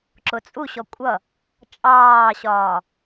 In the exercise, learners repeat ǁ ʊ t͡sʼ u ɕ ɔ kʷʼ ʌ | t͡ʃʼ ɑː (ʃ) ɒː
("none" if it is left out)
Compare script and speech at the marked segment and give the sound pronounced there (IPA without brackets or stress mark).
ɕ